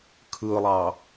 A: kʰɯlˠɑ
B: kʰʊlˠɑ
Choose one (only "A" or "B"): A